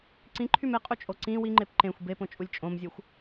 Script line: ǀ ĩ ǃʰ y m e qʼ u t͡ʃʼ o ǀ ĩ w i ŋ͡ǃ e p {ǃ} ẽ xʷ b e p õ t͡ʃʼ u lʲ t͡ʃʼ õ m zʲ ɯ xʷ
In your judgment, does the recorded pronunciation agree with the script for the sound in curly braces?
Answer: yes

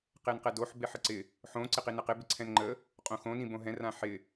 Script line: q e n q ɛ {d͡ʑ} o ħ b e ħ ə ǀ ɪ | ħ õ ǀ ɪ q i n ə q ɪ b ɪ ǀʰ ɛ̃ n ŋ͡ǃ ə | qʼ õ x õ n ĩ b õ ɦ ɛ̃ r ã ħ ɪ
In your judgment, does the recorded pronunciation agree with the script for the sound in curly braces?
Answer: no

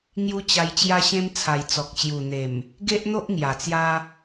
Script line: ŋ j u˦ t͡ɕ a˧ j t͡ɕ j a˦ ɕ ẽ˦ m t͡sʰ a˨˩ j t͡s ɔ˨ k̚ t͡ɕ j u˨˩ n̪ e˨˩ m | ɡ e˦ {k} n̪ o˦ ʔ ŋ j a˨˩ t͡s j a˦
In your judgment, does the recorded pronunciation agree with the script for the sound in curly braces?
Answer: no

